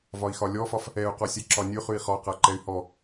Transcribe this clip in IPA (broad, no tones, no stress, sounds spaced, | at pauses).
v ɒ i̯ x ɒ lʲ ɔ f ɒ f | ɛ u̯ q ɔ sʲ ɛ ǁ ɒ nʲ ʉ χ ʉ i̯ χ ɒ q a ǃ ɛ y̯ h ɔ